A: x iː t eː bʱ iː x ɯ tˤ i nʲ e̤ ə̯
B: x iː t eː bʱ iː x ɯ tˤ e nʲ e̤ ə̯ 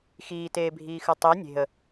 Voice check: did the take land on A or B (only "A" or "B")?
A